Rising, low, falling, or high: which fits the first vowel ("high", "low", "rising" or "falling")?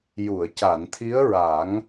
low